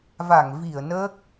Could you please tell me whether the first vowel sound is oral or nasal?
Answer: oral